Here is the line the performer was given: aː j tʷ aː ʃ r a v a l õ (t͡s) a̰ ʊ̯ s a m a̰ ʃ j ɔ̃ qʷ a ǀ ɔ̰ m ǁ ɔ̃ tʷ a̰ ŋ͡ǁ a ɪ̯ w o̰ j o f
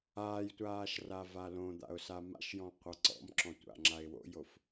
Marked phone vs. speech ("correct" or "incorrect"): incorrect